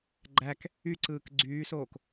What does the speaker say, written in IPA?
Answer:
ɡ͡ǃ æ k | y ǀ ɯː k ɡ͡ǀ yː s oː k

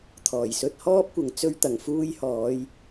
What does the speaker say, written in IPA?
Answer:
t̪ʰ ɔː˨˩ j s ɵ˧ t̚ h ɔː˥ p̚ kʷ ɐ˨ ŋ t͡s ɵ˧ ɥ t̪ ɐ˨˩ ŋ f uː˧ j h ɔː˨˧ j

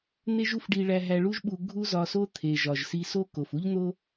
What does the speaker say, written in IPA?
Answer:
n̪ e˥ ʒ u˥ f ɖ i˧ ɭ æ˧ ɦ æ˧ ɭ u˥ ʒ ɓ u˧ ɡʱ u˥ z ɒ˧ s o˥ t̪ʰ e˩ ʒ ɒ˩ ʒ s i˧ s o˥ k o˩ f u˥ ʎ n̪ o˥

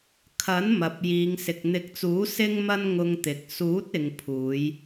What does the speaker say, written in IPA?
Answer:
kʰ ɐ˨˥ n m ɐ˨ p̚ j iː˨˧ ŋ s ɪ˨ k̚ n̪ ɪ˨˥ k̚ t͡s uː˨˥ s ɪ˥ ŋ m ɐ˥ n ŋ ʊ˧ ŋ t̪ ɪ˨ k̚ s uː˨˥ t̚ ɪ˨ ŋ pʰ uː˨˧ j

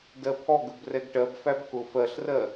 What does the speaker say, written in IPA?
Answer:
d ɜ pʰ ɔ ɡ ə b r ɛ ɡ ʈ ɜ b f æ b k ʊ f ɜ ɬ r ɜ

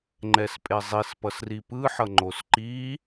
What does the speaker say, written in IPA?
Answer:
ŋ͡ǃ ɛ s pʼ e zˤ i s p ʌ s r i p ɯ ħ ʌ ŋ͡ǃ o s ǃ i

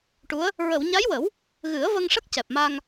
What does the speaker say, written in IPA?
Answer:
ʈ u˧˥ ə̯ | ɹ ə˨˩˨ w ɲ a˧˥ j w ə˨˩˦ w | ɣ ɨ˨˩˦ ə̯ v ə˧ ŋ ʂ ə˦˥ k̚ c ɛ˨˩ p̚ m a˧ ŋ

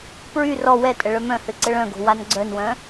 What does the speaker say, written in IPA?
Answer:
p ɹ y r ɔ w ɛ tʼ ə ɭ œ m œ̃ h ø ǀ ə ɭ œ̃ ɡ o̤ w a n ɡ͡ǀ œ n w œ̃

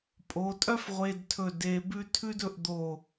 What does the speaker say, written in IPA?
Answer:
pʼ o˩˧ tʼ œ˥ f ʁʷ e˧ d tʰ ɵ˧˩ d e˧ b ʉ˥ tʰ ʉ˥ d ɵ˧ ʔ d̪ o˧˩

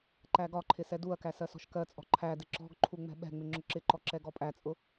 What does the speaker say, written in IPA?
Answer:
ǃ æ ɡ ɒ ǃʰ ɪ s ɛ d u ɐ̯ k æ s ɜ s ɔ̤ ʃ k ɜ t͡sʼ ɔ̤ ǃʰ æ d ɪ ǁ ɔ̤ ɡ ǃʰ u ŋ͡m ɛ̤ ɓ ɛ̤ ŋ͡m ɪ ŋ͡ǁ ʊ ǁ ɪ ǃ ɔ ǁ ɛ ɡ ɔ pʼ æ t͡sʼ ʊ

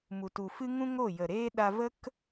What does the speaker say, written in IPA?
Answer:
m u˨ t u˨ f ɨ˦ ŋ ũ˦ ŋ o˦˨ j ə˨ ɾ eː˦ ɗ a˧ v ə˦ k

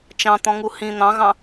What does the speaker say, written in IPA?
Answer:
t͡ʃ ɑ̃ t̪ ɔ̃ ŋ u h ĩ n̪ ɑ̃ ɣ ɑ̃

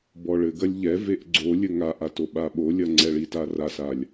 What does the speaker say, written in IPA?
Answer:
b ɔ ɭ ɘ ɡ ɐ lʲ ʎ ɛ v e ʔ ɡ͡ǀ o lʲ ɘ ŋ a ʔ a t o ɓ a ɓ o lʲ ɐ ŋ͡ǀ ɛ ɭ i t a r a s a lʲ

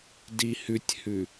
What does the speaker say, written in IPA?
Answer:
d i h ʉ tʲ h ʉ

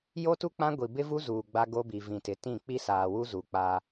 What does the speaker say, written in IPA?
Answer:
j o˦ t u˦ k͡p ã˦ ɡʷ i˨ b ɪ˦ v u˦ z uː˨ ɡ͡b a˦ ɡ o˦ b i˨ v ĩ˨ t ɪ˨ t ĩ˦˨ k͡p i˦ s aː˨ w u˦ z u˨ k͡p a˦

